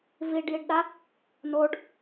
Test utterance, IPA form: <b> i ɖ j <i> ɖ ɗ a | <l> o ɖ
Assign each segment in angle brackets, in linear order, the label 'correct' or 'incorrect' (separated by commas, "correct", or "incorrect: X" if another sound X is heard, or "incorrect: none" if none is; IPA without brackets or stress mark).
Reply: incorrect: v, correct, incorrect: n